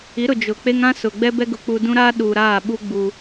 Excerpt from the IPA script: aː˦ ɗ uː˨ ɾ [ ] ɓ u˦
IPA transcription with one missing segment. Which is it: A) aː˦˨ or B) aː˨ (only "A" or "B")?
A